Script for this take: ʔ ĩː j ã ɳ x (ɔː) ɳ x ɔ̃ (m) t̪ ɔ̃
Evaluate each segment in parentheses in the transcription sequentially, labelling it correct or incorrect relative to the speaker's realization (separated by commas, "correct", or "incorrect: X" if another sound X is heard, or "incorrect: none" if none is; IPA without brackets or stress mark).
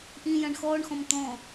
correct, correct